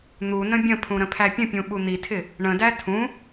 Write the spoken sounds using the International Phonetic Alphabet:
n̪ u n ə̃ bʲ ə̃ pʰ ũ ɾ ə̃ pʰ æ pʲ ə̃ pʲ ũ ɓ u n̪ i tʰ ɪ | ɳ ə̃ d æ tʰ ũ

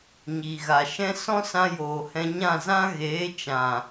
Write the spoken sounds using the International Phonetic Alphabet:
ɲ iː˨ ɣ a˨ ʃ ɛ̃˦ s ɔ̃˦ s ã˧ j oː˨ h ɛ̃˧ ɲ ã˦˨ z ã˦ ɣ eː˨˦ t͡ʃ ã˨

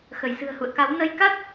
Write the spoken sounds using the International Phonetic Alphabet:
x ə˧˩ j s ɨ̤˨˩ ə̯ h ṵ˧˨ ə̯ k a˨˦ w n ə˧ j k a˦˥ t̚

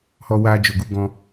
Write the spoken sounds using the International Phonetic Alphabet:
h ɔ˧ w a˧ d͡ʒ o˨ ɡ u˧ ɡ ɔ̃˧

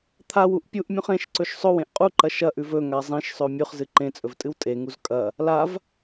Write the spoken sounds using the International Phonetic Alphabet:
t̪ʰ a w u ʔ pʲ u ʔ mʲ ũ χ ẽ ʃ ǀ ɵ ʃ sˤ ɵ w ẽ ʔ qʼ u ǃ ɐ ʃ ɐ ʔ ʉ v ɵ ŋ a zˤ ĩ ʃ sˤ ɵ mʲ ʉ χ z ɨ ǃ ẽ t͡sʼ ɵ v tʼ ɨ w tʼ e ŋ u z kʼ ɐ | l a v

